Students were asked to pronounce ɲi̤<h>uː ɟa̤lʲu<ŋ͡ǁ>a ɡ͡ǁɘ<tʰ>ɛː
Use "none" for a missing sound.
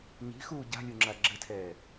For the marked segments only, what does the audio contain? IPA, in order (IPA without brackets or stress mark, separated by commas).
x, ŋ͡ǁ, tʰ